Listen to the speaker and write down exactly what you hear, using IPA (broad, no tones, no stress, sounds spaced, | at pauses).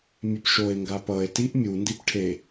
mʲ ɛ p ʃ o e̯ ŋ ɡ a p ʌ e̯ t i ʔ mʲ u n d i p ʈʰ e